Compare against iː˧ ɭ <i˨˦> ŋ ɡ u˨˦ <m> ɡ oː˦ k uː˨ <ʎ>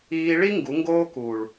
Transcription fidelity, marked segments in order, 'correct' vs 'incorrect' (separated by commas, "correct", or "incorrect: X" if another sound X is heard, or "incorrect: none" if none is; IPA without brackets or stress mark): incorrect: i˦, incorrect: ŋ, incorrect: ɭ